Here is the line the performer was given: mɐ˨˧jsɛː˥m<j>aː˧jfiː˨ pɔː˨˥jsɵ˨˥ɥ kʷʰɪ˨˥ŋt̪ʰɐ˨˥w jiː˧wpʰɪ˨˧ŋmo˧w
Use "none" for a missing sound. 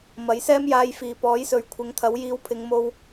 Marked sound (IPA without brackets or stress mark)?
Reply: j